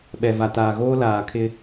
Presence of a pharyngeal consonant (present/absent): absent